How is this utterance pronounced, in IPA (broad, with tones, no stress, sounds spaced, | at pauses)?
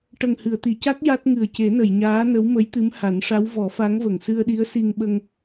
ʈ ə˨˩ ŋ h ɨ˨˩˨ ə̯ t̪ i˨˩˨ c a˦˥ k̚ j a˦˥ t̚ ŋ ɨ˨˩ ə̯ c e˨˩˦ n ə˨˩˨ j ɲ aː˧˥ n ə˧˥ w m ə˧˥ j t̪ ɨ˧˥ m h a˨˩˦ n ʂ a˧˥ w v ɔ˨˩˦ f a˧˥ ŋ v ə˨˩˨ ŋ s ɨ˧ ə̯ ɗ i˧˥ ə̯ s i˧ ŋ ɓ ə˧ ŋ